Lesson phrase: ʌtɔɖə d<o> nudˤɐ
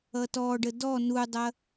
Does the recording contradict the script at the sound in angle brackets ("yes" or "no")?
yes